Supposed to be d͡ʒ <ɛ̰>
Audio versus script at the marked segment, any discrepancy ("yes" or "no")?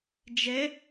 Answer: yes